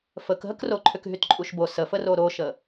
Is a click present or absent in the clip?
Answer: present